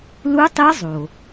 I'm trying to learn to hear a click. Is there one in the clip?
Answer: no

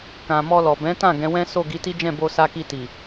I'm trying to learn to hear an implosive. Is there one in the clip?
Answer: no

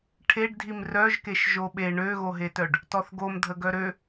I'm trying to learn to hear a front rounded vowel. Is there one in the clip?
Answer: yes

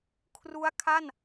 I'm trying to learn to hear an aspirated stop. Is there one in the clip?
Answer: yes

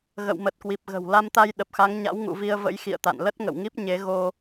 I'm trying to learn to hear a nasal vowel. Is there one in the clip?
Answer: no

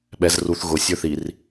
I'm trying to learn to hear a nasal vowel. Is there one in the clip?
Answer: no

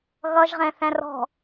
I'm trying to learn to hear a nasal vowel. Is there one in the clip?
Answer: yes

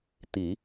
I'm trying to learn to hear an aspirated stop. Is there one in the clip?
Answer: no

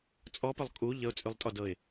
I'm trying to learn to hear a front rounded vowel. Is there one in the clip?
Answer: yes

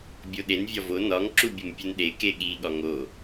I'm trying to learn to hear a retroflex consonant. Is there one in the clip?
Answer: no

